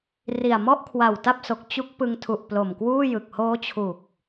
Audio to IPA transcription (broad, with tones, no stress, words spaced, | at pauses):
ri˨˩a̯ mɔ˥˩ʔkʰwa˨˩w ta˥˩p̚so˨˩k̚ t͡ɕu˦˥k̚ pɯ˧ŋtʰu˨˩ʔ plo˨˩mkwuː˥˩ jɯ˨˩k̚ hoː˦˥t͡ɕʰu˨˩k̚